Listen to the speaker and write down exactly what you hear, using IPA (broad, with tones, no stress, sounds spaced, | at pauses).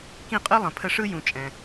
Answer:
k ĩ˥˩ qʼ ɯ˥ lˠ ə̃˩ pʰ ə˧ ʂ ɯ˥ j ũ˩ t͡ʃʼ ɛ̃˩